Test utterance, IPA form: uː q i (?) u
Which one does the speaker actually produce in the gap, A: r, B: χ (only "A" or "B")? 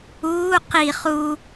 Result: B